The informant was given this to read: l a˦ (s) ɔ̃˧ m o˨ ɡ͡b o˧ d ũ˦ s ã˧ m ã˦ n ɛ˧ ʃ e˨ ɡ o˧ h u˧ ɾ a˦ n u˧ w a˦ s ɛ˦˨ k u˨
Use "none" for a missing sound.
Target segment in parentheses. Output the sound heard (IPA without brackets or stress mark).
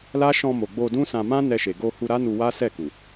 ʃ